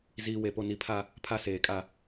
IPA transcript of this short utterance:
z iː˨ w e˨ p o˨ n i˨ pʰ a˦ | pʰ a˦ s eː˨ kʼ a˦

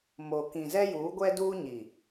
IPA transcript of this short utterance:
m o˨ k ĩ˨ z ɛ˦ j uː˨˦ ɡʷ ɛ˦ d uː˦ ɲ i˨

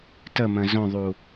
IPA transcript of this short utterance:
t ə m ə̃ z õ ðˤ u

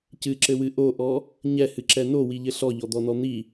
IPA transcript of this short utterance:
c ɨ ǁ ɘ w ɨ ʔ o ʔ ɔ | ɲ ɛ h ɨ ǁ ɛ n o w i ʎ ɘ ɬ ɔ ʎ ɔ d̪ ɔ n ɔ n̪ i

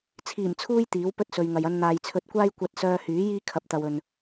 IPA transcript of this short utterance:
t͡sʰ iː˨˩ m t͡sʰ uː˧ j t̪ iː˨˥ w p ɵ˥ t̚ s ɵ˨ ɥ ŋ ɐ˨ j ɐ˧ n n̪ aː˨ j t͡sʰ ɵ˧ t̚ kʷ aː˥ j kʷ ɐ˧ t̚ s œː˧ h yː˨˥ j iː˥ kʰ ɐ˨ p̚ t̪ ɐ˨ w ɵ˨ n

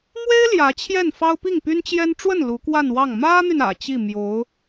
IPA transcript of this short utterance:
m w e˥ ɪ̯ l j ä˧˥ t͡ɕʰ j ɛ˥˩ n f ɑ˥ ʊ̯ p i˥˩ ŋ p y˥ n t͡ɕ j ɛ˥ n ʈ͡ʂ w ə˥˩ n l u˧˥ k w a˥˧ n w ɑ˥˩ ŋ m ä˥ n̪ y˨ n ä̰˨˩ t͡ɕ i˥˩ m j o˧˥ ʊ̯

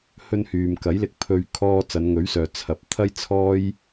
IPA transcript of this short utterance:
h ɵ˧ n h yː˨ m k ɐ˨˥ j l ɪ˧ k̚ pʰ ɵ˧ ɥ kʰ ɔː˧ t͡s ɐ˨˧ n ŋ ɵ˨˥ ɥ s œː˨ t͡sʰ ɐ˨ p̚ t̪ʰ ɐ˥ j t͡sʰ ɔː˥ j

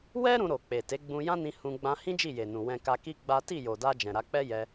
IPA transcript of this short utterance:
w ɛ˦ ɾ ũ˧ ɾ o˨ k͡p e˨ t e˨˦ ɡ͡b ũ˧ j ã˦ n ĩ˧ h ũ˧ ɡ͡b ã˧ h ĩ˦ d͡ʒ i˦˨ j e˨ n ũ˨ w ɛ̃˧ k a˧ k i˦ ɡ͡b a˦ t i˦˨ j o˨ d a˧ d͡ʒ ɛ̃˨ ɾ a˧ k͡p ɛ˦ j ɛ˧

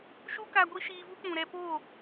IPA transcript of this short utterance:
ʃ u˦ k a˧ ɡʷ i˦ ʃ iː˧ v u˦ k͡p ũ˨ ɾ ɛ˧ p o˦˨

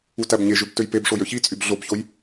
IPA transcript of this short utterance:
u t æ b ɲ e ʒ ø b t ø j p e b ʂ o j ø ç i t͡sʼ y b ɮ o b ç o j

